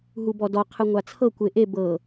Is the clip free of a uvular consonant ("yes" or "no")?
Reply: no